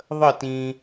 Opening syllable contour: falling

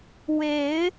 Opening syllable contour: rising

